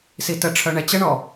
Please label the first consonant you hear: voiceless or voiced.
voiceless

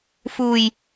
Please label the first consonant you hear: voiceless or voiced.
voiceless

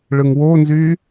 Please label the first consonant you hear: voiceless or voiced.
voiced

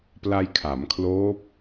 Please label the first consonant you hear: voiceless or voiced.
voiceless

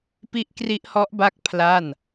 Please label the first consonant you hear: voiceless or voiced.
voiceless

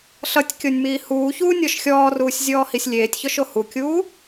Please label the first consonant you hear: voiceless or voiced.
voiceless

